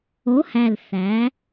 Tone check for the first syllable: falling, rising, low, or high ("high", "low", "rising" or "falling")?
rising